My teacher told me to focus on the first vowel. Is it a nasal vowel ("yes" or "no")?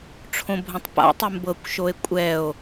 yes